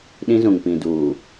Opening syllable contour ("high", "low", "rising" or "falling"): high